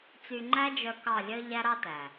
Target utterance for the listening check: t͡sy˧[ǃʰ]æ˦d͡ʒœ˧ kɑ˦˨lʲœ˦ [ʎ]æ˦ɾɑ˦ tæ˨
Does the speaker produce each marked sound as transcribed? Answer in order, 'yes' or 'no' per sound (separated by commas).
no, yes